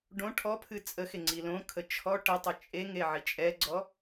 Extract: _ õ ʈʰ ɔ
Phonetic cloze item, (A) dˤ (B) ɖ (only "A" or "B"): B